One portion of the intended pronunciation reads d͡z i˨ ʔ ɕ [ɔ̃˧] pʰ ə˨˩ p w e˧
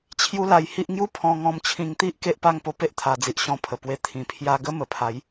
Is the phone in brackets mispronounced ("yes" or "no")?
no